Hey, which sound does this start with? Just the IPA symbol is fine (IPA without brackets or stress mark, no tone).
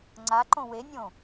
ŋ͡ǀ